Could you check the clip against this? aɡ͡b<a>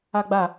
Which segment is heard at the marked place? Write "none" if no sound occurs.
a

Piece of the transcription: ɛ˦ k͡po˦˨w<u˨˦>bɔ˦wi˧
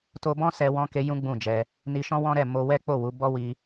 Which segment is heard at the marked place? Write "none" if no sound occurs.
u˨˦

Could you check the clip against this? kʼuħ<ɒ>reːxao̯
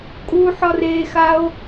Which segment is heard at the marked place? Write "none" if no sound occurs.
ɒ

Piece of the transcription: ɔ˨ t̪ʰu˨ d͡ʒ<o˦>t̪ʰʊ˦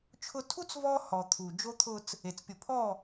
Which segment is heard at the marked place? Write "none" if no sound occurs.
o˦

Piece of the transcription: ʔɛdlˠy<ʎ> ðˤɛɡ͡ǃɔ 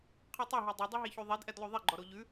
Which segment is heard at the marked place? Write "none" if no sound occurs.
none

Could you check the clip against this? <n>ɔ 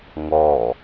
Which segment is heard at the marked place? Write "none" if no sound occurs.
ŋ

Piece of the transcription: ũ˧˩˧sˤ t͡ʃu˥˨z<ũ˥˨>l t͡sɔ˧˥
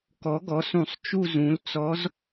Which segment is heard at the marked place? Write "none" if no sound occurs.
ũ˩˥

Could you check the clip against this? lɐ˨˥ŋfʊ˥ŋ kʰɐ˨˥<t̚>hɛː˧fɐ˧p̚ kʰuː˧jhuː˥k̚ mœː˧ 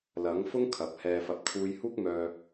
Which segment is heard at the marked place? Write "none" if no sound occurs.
p̚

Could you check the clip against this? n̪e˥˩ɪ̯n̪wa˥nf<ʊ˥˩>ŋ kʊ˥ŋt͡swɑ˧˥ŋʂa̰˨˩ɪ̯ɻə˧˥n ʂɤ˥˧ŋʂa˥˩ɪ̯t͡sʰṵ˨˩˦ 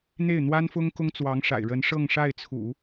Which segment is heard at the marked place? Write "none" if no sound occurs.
ʊ˥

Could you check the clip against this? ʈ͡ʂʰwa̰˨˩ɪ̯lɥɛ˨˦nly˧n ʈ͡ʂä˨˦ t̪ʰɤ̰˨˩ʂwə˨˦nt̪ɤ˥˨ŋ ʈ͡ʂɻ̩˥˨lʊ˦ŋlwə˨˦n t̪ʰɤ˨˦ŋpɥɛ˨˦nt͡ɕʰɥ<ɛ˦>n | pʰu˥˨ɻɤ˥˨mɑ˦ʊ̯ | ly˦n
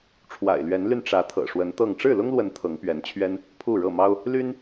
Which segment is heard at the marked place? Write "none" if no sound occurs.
ɛ˦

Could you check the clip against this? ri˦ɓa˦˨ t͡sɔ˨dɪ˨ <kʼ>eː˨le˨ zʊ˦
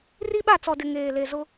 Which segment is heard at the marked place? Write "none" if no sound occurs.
ŋ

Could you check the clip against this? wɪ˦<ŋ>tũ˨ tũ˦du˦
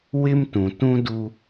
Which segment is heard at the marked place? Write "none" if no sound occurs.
m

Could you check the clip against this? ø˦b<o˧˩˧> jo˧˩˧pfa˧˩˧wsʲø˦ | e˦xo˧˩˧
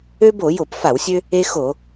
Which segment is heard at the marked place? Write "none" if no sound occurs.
o˧˩˧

